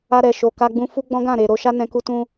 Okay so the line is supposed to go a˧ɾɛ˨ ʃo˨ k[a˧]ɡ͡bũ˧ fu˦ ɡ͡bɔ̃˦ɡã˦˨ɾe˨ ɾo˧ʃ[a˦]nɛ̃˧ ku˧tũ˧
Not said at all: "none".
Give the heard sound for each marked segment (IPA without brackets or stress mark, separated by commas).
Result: a˧, a˦